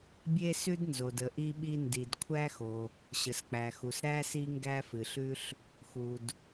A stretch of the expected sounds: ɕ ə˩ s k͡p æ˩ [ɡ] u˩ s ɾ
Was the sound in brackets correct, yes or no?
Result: no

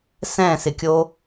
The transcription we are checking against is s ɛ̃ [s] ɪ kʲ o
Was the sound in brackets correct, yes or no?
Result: yes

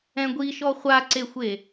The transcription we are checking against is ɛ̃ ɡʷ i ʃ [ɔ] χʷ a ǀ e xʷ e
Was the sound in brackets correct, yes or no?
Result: yes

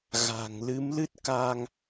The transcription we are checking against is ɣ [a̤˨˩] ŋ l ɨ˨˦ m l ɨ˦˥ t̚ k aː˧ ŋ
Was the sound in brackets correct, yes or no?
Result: yes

